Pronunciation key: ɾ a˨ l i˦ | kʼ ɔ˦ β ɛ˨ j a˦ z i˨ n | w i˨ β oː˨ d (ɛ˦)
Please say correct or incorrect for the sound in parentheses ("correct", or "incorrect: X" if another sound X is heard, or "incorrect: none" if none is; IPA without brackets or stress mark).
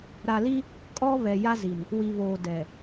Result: incorrect: ɛ˨